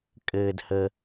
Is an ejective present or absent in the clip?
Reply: present